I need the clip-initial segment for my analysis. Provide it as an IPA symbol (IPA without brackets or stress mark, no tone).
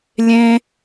lʲ